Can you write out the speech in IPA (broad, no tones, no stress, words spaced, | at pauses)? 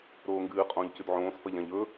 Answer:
ɾoːŋɡɨː qʼõːʎcʉdʕõːs fɐʎãʎɵ